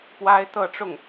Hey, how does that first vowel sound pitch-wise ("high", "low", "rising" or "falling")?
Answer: high